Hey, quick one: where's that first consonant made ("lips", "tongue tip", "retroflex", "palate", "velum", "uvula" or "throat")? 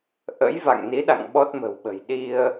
throat